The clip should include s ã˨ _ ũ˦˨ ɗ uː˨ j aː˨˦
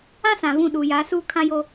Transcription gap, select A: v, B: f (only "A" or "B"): A